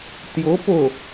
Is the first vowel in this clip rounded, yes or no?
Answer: yes